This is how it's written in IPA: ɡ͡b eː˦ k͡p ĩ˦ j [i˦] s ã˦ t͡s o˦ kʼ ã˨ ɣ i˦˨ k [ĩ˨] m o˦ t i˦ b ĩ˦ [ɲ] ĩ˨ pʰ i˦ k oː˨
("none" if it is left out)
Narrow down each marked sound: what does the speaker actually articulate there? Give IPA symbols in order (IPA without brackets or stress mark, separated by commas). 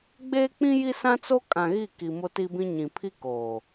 i˦, i˨, ɲ